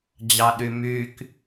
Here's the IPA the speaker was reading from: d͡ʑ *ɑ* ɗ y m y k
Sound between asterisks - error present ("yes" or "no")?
no